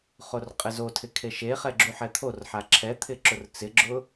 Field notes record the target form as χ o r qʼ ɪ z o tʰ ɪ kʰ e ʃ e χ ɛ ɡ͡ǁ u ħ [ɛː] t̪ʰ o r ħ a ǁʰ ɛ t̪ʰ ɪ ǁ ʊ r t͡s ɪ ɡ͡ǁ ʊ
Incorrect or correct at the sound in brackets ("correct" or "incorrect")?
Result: incorrect